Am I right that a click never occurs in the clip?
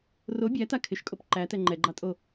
no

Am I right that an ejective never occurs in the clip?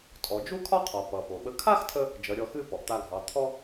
no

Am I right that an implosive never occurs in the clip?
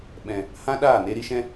no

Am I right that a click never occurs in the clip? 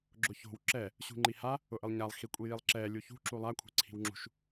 no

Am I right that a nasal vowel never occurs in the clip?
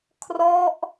yes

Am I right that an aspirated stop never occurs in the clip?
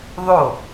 yes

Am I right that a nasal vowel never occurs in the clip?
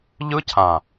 no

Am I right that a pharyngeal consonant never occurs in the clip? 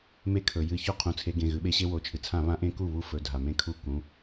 yes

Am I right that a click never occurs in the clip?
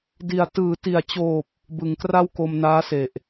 yes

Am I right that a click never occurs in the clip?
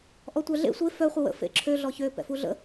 no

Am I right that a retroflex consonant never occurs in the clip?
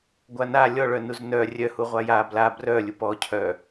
no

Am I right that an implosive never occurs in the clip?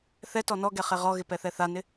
yes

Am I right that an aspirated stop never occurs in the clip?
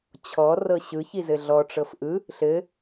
no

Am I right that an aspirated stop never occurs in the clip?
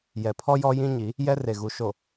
no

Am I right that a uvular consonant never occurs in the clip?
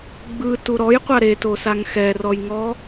no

